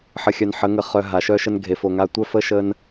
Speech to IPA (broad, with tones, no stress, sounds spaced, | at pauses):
ħ ə˨ xʲ œ˨ n ħ ə˨˦ ŋ ə˨ χ œ˨ ɦ a˨ ʃ œ˦ ʃ ə˦ n ɡʱ e˨ f o˨ ŋ a˦ tʷ œ˦ f ə˦ ʃ ə˦ n